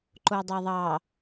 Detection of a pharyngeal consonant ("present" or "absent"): absent